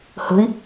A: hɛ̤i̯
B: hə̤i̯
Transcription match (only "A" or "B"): B